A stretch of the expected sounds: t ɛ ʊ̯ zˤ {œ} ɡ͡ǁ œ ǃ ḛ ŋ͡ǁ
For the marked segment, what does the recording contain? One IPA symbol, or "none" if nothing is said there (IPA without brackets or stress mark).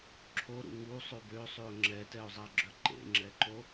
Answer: æ